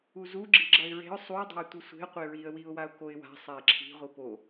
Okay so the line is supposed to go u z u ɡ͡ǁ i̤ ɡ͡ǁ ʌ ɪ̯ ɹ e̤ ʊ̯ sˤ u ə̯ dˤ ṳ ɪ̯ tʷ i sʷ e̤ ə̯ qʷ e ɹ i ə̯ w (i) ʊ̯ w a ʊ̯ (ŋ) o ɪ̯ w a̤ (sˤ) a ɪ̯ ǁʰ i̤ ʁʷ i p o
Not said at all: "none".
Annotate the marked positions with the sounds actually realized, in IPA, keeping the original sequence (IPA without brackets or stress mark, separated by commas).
i, k, sˤ